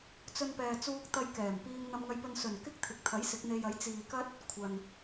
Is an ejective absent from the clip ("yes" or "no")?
yes